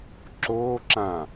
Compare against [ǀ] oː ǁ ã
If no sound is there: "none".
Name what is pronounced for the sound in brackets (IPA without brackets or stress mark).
ǁ